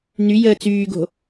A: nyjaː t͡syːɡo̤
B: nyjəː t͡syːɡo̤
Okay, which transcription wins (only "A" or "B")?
B